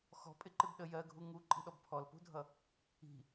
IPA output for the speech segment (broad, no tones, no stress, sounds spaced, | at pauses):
x ɔ̤ pʼ ɪ ǃ ɪ b ɗ ə j ɜ ɡʱ u ŋ u ǃʼ i̤ ɗ ɔ b pʰ ɔ l p ṳ dʱ ʌ | i̤